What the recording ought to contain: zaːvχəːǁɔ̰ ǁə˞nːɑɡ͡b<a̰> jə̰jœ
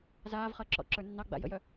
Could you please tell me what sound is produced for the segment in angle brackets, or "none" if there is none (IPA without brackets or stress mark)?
a̰